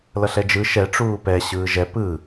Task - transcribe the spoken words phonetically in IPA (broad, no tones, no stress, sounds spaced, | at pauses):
l ʌ ɬ ɛ d͡ʒ ɯ ʃ ɛ ʈ͡ʂ uː p ɛ ɕ ɯː ʒ ɛ p ɯ